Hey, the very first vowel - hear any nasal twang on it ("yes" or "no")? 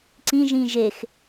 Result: yes